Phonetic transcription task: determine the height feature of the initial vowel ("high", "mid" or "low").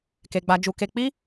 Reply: mid